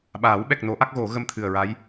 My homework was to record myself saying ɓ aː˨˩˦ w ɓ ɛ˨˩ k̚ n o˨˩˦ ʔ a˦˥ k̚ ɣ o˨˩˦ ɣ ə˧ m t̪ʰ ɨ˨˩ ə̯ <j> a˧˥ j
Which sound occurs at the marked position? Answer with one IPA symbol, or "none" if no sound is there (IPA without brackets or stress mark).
ɹ